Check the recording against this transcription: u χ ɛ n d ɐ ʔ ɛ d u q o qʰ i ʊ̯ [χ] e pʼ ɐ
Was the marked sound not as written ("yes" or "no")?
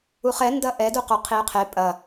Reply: yes